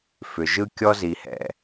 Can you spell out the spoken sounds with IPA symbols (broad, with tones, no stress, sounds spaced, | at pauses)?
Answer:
f ʏ˩ ʒ ɯ˥ kʲ ɔ˥ z i˩ h ɛ̰˩